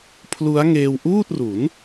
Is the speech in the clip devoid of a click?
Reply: yes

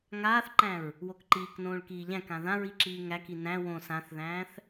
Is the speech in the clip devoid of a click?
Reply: no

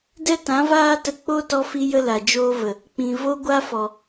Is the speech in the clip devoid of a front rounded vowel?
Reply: yes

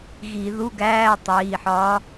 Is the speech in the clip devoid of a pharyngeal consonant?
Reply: no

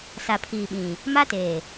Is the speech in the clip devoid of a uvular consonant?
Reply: yes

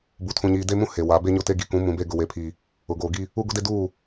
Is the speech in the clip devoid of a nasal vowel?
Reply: no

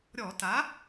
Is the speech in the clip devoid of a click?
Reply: yes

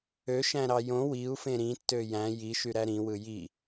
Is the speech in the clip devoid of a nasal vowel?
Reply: no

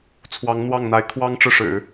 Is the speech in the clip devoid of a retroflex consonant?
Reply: no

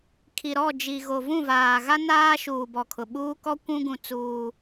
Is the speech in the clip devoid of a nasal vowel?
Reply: no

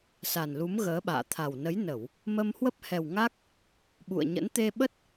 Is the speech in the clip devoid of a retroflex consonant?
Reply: yes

